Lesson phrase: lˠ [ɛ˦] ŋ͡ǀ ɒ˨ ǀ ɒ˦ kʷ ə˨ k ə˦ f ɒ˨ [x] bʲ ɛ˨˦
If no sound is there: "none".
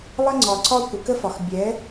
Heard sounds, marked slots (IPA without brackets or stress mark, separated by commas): ə˦, x